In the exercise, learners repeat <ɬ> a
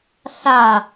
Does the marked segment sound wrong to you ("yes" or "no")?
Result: no